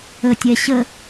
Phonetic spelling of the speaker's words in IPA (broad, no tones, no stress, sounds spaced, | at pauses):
ə tʲ ɛ ɕ ə